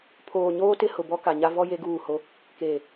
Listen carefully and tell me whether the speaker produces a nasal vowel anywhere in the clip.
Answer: no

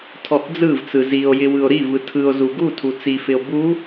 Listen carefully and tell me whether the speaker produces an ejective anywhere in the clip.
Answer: no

